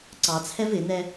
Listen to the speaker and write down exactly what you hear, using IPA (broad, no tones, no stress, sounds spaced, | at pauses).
ǀ ɑ t͡sʰ ɛ v ɪ n̪ ɛ